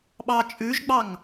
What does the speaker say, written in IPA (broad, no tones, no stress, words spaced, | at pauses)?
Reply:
ɓɑt͡ʃʼʉʒɡ͡bɑŋ